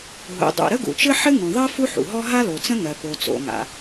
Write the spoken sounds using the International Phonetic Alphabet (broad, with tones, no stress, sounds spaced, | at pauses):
ɦ ṵ˩ dˤ ṵ˩ ɾ ə˥ ɡ ṵ˩ t͡ʃ ɘ˥ ħ ɘ˥ ŋ ũ˩ ðˤ ɜ˥ f u˥ ħ ṵ˩ ɦ ɔ˥ ɦ a˥ l o˩ t͡s ə̃˥ ŋ ɜ˩ p o˩ t͡s o̰˩ ŋ a̰˩